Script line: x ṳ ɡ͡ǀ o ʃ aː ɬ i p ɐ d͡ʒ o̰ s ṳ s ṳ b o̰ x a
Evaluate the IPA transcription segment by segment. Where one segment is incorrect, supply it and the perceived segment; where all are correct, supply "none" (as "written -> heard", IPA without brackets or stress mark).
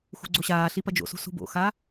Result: ʃ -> ɕ